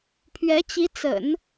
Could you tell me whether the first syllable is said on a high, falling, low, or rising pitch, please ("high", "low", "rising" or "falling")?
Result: rising